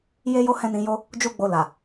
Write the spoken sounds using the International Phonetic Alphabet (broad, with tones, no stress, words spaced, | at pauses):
je˦jo˦ hɛ̃˦nĩ˧jo˦ | d͡ʒu˦ɡ͡bo˧ la˨